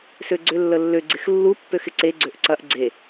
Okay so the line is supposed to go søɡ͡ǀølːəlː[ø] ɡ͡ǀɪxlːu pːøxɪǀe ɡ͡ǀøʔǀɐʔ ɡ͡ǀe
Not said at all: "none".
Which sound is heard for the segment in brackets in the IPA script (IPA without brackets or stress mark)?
ø